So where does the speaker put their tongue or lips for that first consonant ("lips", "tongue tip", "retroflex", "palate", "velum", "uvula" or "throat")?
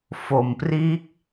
lips